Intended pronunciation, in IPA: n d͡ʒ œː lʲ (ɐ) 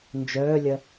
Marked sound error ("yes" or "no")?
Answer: no